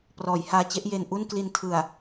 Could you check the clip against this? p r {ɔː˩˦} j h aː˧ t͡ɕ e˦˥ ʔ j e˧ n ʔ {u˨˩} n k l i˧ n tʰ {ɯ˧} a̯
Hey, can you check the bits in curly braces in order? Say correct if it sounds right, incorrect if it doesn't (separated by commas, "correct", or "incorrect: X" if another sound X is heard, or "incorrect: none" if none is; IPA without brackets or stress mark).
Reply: correct, incorrect: u˥˩, incorrect: ɯ˨˩